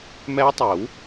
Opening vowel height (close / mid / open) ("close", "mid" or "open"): mid